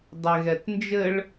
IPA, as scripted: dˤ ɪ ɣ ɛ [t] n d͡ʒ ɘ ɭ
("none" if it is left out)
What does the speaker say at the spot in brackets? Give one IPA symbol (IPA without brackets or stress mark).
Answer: t